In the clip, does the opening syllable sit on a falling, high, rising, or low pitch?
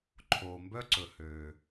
low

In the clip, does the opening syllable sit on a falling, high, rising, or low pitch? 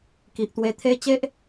low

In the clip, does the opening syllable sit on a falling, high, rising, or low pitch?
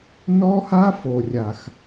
high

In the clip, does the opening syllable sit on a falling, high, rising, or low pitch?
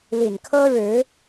low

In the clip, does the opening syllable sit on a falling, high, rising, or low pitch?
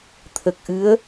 low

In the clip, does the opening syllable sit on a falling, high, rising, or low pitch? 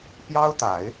high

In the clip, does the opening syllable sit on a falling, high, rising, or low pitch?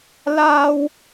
high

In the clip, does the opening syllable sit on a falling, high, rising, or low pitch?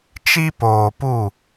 high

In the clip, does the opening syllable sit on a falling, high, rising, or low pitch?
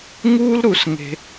high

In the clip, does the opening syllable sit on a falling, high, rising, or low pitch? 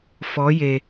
rising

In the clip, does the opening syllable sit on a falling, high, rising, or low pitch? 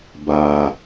low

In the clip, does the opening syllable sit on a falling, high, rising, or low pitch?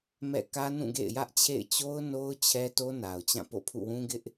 falling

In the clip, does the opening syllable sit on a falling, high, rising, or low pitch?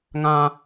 high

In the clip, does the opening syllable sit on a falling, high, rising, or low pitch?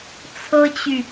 high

